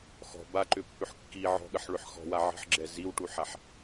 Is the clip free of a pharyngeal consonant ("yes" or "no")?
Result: no